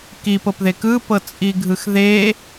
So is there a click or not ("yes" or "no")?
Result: no